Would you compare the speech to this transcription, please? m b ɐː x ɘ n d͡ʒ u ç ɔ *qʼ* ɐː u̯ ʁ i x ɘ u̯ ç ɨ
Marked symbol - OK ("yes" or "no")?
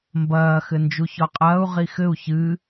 yes